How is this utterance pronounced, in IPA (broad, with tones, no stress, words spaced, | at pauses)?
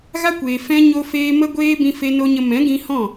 ɣa˦kʷeː˨ fɛ̃˧ ɲo˧feː˧ mə˦ ɡʷeː˦bĩ˧fe˧ no˧ɲə˧ mɛ̃˨˦ɡĩ˧hɔ̃˦˨